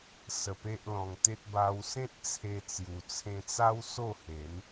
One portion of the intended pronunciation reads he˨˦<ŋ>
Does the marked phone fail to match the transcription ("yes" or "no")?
yes